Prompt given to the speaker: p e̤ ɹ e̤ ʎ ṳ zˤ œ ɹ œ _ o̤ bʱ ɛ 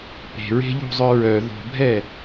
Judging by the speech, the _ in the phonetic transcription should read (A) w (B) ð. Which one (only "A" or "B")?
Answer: B